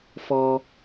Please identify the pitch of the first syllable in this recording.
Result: low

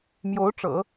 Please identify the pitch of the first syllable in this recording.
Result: rising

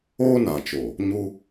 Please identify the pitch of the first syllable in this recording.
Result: high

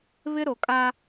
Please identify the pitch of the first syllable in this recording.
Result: high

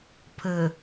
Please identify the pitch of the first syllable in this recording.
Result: low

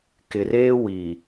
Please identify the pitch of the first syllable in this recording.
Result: low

